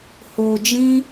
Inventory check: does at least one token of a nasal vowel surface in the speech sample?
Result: yes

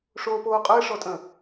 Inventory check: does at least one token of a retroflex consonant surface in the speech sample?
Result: yes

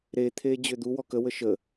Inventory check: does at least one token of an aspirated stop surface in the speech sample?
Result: yes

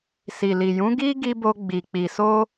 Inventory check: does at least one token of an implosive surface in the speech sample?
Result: no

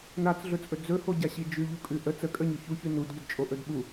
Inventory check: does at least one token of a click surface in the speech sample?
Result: no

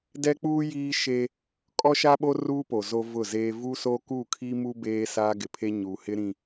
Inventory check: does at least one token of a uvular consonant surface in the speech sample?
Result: no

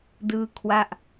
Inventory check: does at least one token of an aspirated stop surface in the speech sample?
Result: yes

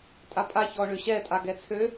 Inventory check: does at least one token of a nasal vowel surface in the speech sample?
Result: no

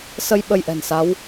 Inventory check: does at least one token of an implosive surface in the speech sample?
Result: yes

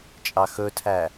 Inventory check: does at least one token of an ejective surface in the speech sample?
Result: yes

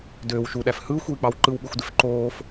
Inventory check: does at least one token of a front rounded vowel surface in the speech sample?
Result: yes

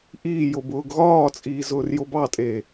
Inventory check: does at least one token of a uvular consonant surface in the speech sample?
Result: no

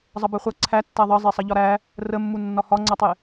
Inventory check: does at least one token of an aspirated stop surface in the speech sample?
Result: yes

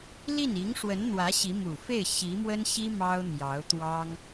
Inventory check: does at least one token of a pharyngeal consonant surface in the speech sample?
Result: no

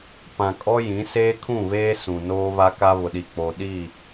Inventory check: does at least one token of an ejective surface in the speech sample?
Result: yes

